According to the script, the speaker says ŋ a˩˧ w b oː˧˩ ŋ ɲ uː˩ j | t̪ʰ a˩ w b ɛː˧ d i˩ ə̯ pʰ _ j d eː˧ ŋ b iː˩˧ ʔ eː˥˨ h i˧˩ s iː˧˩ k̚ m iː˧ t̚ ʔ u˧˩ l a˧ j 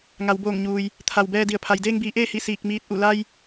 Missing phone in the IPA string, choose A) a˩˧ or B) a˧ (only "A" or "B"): A